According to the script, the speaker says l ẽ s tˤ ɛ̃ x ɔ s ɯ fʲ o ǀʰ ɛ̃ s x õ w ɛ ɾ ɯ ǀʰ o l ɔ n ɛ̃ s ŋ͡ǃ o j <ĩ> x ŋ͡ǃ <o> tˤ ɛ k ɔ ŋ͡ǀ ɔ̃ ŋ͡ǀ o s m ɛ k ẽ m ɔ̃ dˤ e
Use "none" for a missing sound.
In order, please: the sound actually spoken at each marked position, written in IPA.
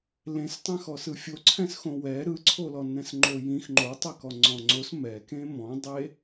ĩ, o

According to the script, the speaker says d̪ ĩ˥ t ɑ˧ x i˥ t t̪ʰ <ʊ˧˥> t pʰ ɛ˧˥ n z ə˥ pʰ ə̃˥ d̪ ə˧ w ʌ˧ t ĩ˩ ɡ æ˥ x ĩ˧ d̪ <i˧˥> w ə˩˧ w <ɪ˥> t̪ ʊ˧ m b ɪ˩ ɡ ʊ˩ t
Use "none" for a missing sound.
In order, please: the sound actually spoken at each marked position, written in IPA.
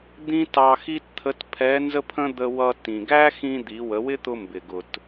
ə˧˥, i˩˧, ɪ˥

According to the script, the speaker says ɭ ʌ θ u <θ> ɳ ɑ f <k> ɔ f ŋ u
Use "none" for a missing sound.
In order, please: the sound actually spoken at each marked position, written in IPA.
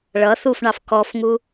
f, k

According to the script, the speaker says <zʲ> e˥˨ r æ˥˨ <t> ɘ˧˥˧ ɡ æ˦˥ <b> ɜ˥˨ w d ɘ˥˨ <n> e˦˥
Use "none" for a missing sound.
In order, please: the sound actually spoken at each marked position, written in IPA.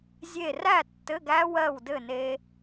zʲ, tː, w, n

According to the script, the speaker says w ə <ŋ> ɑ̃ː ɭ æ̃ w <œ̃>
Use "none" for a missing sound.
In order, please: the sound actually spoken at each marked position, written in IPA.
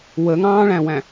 ŋ, æ̃

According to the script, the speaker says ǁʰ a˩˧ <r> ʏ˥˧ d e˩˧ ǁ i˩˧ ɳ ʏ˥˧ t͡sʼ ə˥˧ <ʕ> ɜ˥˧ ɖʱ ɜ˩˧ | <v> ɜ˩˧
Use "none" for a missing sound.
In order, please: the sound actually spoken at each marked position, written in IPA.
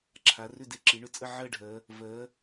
r, ʕ, v

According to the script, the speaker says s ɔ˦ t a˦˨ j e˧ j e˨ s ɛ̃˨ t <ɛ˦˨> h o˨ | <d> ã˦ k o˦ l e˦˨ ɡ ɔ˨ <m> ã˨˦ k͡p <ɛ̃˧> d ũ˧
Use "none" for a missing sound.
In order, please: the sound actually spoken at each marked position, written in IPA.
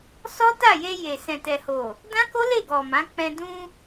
ɛ˨, d, m, ɛ̃˧

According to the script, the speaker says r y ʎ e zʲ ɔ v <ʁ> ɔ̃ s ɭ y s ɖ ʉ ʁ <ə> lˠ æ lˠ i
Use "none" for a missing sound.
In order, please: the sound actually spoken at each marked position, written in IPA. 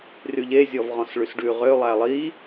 ʁ, ø

